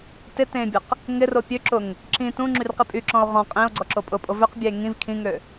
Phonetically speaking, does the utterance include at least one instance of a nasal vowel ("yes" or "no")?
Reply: yes